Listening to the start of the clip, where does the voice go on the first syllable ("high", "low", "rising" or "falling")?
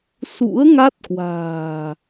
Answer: rising